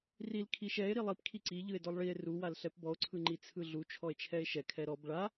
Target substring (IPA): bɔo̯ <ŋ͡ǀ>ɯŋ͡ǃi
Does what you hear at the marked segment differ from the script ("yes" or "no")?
yes